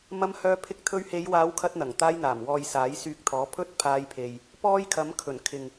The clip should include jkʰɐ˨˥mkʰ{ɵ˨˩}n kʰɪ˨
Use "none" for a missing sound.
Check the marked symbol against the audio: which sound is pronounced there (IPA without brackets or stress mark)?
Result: ɵ˨˩